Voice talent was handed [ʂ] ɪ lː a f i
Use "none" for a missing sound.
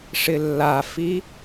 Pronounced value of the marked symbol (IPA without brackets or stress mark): ʂ